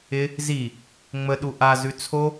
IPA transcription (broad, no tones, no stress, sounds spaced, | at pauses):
ɪ | z i | ŋ͡m ə ɗ u ʔ a z ʉ t͡sʰ o